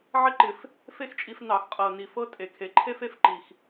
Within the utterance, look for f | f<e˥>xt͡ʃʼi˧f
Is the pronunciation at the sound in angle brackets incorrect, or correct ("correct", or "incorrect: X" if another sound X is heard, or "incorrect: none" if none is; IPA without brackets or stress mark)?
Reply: correct